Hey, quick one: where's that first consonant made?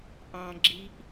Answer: throat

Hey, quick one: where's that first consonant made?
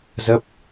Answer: tongue tip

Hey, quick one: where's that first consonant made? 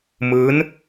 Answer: lips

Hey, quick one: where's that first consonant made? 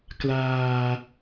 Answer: velum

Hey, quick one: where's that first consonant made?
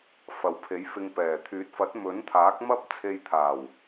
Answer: lips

